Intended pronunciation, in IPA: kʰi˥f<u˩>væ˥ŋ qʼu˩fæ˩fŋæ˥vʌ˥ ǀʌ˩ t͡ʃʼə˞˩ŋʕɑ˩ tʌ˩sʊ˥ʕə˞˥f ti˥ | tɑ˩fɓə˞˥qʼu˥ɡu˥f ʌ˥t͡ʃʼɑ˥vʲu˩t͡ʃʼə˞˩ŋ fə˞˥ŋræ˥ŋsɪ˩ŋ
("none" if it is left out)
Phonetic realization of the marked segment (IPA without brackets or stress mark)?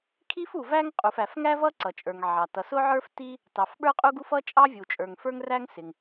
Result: u˩